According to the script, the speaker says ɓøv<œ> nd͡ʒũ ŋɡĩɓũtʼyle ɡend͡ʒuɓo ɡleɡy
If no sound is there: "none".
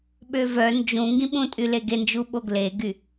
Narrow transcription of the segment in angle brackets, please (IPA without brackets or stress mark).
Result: œ